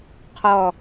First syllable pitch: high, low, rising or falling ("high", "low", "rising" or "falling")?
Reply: falling